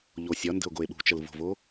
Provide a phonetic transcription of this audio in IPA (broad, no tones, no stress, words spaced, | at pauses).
ʎosʲɒndə̤o̯ ɡoe̯ɓṳt͡ʃəl vo̤vo